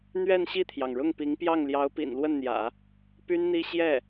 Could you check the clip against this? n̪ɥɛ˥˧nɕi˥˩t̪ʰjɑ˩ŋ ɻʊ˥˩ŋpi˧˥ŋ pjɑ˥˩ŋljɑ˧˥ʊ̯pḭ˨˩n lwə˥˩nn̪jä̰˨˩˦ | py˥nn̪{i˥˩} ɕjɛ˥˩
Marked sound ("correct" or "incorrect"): incorrect